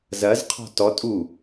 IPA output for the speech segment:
zɐzqʰɔ̤ tɔ tʼu

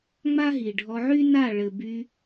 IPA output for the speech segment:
ŋ͡ma˦ɦi˨ɖʱɔ˧ ʕy˦na˦˨ɭɘ˨by˧

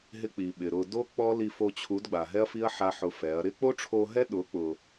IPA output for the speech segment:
ɦɪ˧ k͡pi˨ɓɪ˨ɾʊ˧ do˦ k͡pɔ˦li˧fo˧t͡ɕʰu˨˦d ɡ͡ba˨ɦɛ˦ɐ̯fi˦ɐ̯ ħa˦ħʊ˧fɛ˨˦ɐ̯ ɾɪ˦k͡po˦ʈ͡ʂʰo˧ɦɛ˦ ɗʊ˨˦k͡pʊ˨

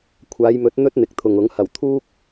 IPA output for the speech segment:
kʷʰaː˨˧jmɵ˨˥t̚ n̪ɵ˥t̚ n̪ɪ˨k̚t̪ʰʊ˨ŋʊ˨˥ŋ hɐ˨˩wt̪ʰuː˥k̚

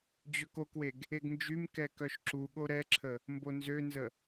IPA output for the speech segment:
d͡ʑøkokweɡ | eɡnd͡ʒymkɛ kœʃǁuɠo ɾɛǁʰə | mbonzønzə

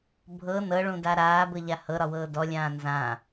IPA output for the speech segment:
bʱɤ nɤɭũda ɾaːbɤʎa hɤɾɒwɤː dɔlʲãː nzã

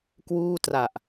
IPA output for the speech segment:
kwuː˥˩tra˨˩ʔ

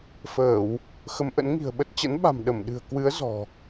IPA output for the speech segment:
fəː˧˩˨w | xə˨˦mʔə̰˧˥nŋi̤˨˩ə̯ɓə˦˥t̚ t͡ɕə̰˧˥nɓa̤˨˩m ɗə˧˩mɗɨ̤˨˩ə̯ kwɨ˨˦ə̯ zɔ̤˨˩

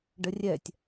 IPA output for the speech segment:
ɖərʲɛtʲ

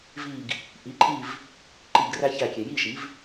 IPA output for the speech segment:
vi˧˩ɡ | ʔi˩˥ǃʼi˥˨v | ǃi˧˩ɡræ˦çæ˧˩kʲe˩ ji˥˨ʃi˩˥v

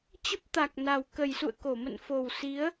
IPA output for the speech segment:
t͡ɕə˦˥p̚t̪a˨˩k̚na˨˩w kə˨˩jsṵ˧˨ə̯ko˧˩ mə̰˧˨nfo˨˩w si˨˦ə̯

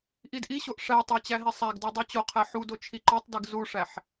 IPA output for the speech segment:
ʔidʔiɕoʔ ʂætˤæ t͡ɕæɦisˤæɡdo dˤot͡ɕoqʰæ ħudo t͡ʃʰiǃotˤdiɡ zuʂæħ

